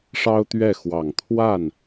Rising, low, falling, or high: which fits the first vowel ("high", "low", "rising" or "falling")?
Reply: high